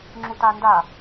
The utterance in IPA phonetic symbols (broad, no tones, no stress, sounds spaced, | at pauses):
ŋ͡ǁ u t a n d a